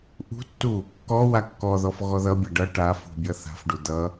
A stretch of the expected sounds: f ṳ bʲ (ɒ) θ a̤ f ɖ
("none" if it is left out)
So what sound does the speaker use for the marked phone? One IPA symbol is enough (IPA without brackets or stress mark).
ʌ